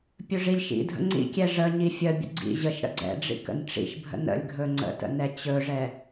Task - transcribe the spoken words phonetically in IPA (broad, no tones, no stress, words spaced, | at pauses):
pʲɵʐilʲʃḭdʱə̰ ŋ͡ǀḭkʲɛ ʐəɲi fʲəbʲə̰ ɡ͡ǀḭ ʑəʃɾə̰ ɡ͡ǀɛ̰ɖ͡ʐḭ kə̰nʈ͡ʂḭʃbʱə̰ nə̰lʲɡʱɵ ŋ͡ǀə̰tə̰ nɛt͡ɕɵʐɛ